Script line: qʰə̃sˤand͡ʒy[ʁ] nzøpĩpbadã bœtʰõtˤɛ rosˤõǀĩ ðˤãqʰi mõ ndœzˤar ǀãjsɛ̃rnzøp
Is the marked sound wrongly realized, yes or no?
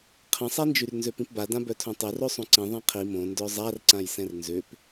yes